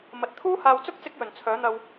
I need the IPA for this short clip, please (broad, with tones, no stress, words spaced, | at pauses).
mɐ˨t̚ t̪ʰuː˥haː˧wt͡sʊ˥k̚ t͡sɪ˥k̚jɵ˨˩nt͡sʰœː˨˥n̪ɐ˧w